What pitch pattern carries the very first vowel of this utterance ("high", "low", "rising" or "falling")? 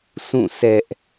falling